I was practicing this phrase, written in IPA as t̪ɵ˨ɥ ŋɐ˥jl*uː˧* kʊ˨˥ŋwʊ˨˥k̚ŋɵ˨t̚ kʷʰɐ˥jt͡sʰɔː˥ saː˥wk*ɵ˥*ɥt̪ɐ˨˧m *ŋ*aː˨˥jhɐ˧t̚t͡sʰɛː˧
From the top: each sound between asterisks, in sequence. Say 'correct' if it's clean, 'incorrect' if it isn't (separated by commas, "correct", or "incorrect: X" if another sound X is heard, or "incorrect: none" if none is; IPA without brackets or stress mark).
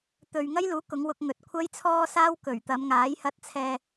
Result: incorrect: uː˨˥, incorrect: ɵ˨˩, correct